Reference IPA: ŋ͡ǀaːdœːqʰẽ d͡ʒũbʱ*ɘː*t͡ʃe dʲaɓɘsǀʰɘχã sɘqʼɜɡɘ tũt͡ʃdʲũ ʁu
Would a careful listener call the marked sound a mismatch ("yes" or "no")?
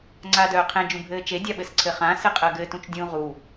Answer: no